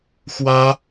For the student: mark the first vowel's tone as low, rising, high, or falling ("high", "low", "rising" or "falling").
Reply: high